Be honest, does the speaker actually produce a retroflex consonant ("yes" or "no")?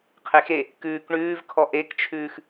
yes